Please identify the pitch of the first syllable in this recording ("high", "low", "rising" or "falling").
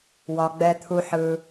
low